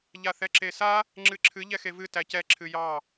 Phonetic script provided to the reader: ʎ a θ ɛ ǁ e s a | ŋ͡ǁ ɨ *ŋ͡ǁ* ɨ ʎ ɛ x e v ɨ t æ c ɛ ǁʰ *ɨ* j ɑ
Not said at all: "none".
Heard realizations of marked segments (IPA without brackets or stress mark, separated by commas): ǁʰ, ɨ